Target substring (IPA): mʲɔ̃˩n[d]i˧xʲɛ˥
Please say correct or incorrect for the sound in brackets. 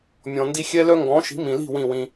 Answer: correct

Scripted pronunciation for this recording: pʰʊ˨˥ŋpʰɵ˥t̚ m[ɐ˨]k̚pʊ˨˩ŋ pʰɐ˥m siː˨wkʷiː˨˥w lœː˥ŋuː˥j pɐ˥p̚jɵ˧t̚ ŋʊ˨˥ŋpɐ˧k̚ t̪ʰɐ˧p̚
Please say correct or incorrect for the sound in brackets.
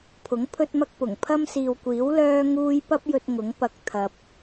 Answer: incorrect: ɐ˥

